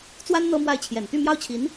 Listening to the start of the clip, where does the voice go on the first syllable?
high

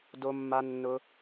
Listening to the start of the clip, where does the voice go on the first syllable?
low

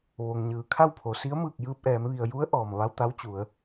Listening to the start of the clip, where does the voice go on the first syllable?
low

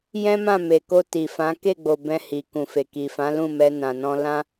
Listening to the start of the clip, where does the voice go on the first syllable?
high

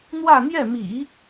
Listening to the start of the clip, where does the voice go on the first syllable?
falling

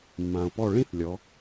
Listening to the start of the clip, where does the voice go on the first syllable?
low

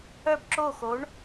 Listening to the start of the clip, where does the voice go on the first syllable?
falling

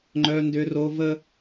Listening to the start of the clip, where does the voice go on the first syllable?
high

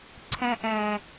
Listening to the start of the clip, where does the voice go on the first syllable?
high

